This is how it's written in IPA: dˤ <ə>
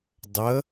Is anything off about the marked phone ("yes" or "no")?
no